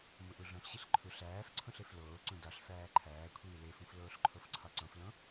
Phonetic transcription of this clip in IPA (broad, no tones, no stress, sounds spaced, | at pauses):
m u ʔ u ɮ õ ɬ ɕ i ɬ ǃʰ u ɬ æː f ǀʰ ũ ɬ e f l oː ǀ ũ d ɒ ɬ f æː ǃʰ æː kʷʰ iː l e f ũ f l oː ɬ ǃʰ o f ǀʰ ɒ ǀ õ f l õ